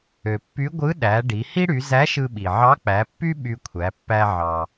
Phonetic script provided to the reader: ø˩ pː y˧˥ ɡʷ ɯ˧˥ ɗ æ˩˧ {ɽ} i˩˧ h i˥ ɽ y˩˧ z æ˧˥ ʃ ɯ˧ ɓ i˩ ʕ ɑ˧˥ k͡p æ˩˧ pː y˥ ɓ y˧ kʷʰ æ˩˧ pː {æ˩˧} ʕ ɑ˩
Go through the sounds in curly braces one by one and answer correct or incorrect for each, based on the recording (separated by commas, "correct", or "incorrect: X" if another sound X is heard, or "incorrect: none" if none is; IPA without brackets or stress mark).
incorrect: ɖ, incorrect: æ˧